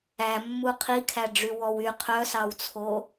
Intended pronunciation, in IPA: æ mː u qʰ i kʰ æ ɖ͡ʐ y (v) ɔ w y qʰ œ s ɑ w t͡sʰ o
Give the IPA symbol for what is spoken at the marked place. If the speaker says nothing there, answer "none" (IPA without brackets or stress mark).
w